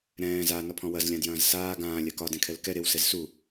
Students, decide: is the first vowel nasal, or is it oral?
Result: nasal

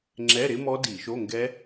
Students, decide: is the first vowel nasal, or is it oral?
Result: oral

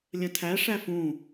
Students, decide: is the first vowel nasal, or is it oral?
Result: nasal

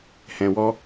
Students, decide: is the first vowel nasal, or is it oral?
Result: nasal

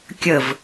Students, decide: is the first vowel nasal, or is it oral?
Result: oral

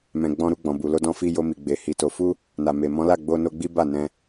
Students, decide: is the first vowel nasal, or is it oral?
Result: nasal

